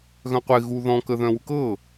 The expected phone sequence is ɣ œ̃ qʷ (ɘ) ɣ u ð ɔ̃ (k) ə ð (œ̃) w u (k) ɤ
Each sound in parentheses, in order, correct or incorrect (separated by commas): incorrect, correct, correct, correct